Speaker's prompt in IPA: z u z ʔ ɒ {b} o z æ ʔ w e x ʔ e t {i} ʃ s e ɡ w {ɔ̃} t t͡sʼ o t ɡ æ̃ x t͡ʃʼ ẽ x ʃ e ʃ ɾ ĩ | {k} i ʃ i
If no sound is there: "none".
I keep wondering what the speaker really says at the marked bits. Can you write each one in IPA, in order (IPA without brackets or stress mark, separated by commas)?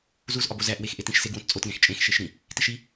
b, ĩ, õ, t